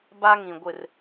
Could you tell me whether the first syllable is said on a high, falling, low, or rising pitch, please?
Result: high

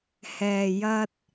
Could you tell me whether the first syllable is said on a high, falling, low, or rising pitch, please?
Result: low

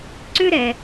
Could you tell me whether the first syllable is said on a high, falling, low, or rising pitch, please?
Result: high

